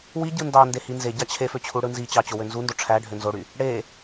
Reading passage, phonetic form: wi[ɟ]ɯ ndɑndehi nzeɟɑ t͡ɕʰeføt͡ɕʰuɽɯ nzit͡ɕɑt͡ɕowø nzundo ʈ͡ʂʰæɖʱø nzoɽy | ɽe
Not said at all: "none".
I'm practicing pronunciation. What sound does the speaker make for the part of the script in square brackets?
ɟ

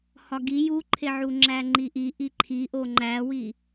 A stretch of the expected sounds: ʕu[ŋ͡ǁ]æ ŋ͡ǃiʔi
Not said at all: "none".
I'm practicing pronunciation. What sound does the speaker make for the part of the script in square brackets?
ŋ͡ǁ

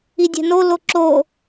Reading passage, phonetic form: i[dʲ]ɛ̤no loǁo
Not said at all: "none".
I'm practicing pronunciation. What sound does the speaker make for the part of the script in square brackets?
dʲ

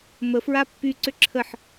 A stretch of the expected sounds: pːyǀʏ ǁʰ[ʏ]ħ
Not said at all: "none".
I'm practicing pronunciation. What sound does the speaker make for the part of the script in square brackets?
ə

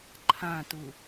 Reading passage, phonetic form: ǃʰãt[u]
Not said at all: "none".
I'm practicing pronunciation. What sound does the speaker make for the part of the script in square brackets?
u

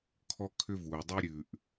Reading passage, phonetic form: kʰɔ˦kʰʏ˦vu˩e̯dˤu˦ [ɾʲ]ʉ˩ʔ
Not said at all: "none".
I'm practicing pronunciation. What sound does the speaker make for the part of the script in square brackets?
ɾʲ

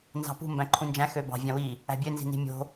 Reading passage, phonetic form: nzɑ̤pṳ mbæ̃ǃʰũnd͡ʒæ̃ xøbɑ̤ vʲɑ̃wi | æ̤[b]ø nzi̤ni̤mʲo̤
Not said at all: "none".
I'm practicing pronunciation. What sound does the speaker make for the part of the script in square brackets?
bʲ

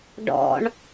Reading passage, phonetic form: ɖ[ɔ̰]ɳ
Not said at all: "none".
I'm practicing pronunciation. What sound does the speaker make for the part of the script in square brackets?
ɔ̰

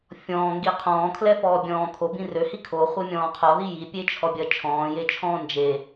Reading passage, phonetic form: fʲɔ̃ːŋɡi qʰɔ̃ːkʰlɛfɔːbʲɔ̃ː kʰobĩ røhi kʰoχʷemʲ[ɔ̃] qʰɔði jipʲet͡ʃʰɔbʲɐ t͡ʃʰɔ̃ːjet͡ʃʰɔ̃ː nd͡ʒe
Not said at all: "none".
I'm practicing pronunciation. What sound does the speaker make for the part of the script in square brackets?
ɔ̃ː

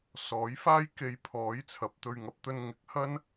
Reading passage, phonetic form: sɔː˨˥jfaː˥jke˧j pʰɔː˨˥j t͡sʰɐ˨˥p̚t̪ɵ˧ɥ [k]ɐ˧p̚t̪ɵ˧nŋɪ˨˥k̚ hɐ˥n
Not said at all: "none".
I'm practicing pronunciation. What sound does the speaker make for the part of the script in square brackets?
ŋ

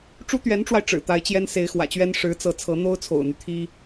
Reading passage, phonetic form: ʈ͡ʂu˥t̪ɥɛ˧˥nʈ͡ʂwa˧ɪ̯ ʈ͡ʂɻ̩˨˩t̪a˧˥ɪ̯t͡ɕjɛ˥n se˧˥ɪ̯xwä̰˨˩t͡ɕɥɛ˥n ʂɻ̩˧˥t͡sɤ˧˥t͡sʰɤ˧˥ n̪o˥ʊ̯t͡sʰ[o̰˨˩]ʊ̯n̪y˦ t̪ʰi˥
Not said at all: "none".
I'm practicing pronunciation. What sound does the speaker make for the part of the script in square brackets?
o̰˨˩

